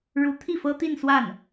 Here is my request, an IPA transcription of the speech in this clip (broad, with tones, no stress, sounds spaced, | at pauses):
ɻ u˧˥ t̪ʰ i˥˩ f ɤ˥ t̪ i˥˧ n s w a˥˩ n